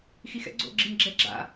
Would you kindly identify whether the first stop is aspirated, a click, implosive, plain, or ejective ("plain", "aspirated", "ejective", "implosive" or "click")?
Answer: click